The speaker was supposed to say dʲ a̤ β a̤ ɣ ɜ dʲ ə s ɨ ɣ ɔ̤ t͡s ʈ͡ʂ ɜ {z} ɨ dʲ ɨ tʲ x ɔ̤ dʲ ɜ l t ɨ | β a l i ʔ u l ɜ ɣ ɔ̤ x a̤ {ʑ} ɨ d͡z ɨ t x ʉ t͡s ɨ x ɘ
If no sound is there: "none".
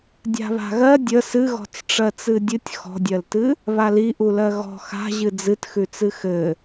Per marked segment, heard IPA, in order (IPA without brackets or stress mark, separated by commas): t͡s, ʑ